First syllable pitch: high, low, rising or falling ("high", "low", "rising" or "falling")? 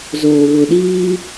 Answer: low